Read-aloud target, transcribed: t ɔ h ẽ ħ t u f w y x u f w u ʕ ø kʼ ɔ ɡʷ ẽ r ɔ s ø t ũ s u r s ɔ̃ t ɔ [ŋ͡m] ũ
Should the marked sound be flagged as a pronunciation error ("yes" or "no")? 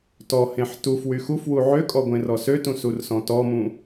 yes